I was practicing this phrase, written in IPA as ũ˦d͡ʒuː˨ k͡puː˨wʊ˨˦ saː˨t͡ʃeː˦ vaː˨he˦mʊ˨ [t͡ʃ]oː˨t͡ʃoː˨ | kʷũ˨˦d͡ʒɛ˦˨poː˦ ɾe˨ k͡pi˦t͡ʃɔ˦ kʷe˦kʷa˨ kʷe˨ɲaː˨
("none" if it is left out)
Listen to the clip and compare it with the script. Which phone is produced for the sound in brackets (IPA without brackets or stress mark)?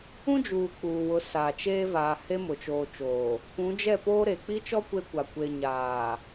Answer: t͡ʃ